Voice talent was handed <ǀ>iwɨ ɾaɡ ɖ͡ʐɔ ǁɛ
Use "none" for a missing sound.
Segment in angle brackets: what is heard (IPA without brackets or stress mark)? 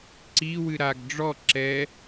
ǀ